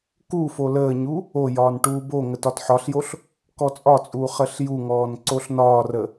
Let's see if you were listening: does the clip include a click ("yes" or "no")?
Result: yes